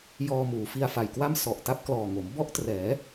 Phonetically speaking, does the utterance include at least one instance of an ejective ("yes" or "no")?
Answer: no